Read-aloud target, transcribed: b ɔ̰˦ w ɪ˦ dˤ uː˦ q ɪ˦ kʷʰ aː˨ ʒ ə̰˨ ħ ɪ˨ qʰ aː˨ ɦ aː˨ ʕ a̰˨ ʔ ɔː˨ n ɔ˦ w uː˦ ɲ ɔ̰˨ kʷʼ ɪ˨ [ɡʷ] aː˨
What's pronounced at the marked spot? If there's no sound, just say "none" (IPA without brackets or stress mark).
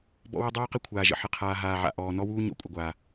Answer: ɡʷ